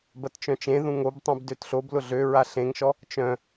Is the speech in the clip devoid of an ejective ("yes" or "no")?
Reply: yes